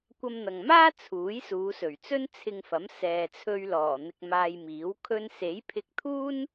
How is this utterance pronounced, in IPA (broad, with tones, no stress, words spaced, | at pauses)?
kʷɐ˧mn̪ɐ˨ŋmaː˥ t͡sʰuː˨˥jsuː˨˧sɵ˨˩ɥt͡sɵ˥n t͡sʰɪ˧ŋfɐ˨˥m sɛː˨t͡sʰɵ˧ɥlɔː˨˩ n̪ɪ˧k̚maː˧jmiː˨˥w kʰɵ˧nse˨˥jpʰɪ˧k̚t̪ʰuː˥n